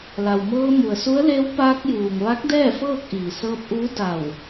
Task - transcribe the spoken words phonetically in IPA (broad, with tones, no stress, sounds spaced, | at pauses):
l a˩ w m ɤː˧ m u˩ ə̯ s u˧˥ ə̯ l e˧˥ w p aː˧ k̚ j uː˩ ŋ ʋ a˧˥ k̚ d ɛː˥˨ f ɤː˥˨ k̚ ʔ iː˩ s ɤː˧ p̚ ʔ uː˧˥ d a˧˩ w